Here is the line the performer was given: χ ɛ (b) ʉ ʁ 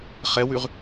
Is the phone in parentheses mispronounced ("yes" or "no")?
yes